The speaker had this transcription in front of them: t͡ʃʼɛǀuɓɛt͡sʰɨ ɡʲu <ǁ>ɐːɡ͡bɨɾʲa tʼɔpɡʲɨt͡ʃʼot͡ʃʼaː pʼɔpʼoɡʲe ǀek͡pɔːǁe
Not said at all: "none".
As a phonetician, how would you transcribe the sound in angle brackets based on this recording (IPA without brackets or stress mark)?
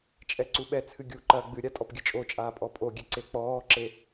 ǃ